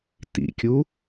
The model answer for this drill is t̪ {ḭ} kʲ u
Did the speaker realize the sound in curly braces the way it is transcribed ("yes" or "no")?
yes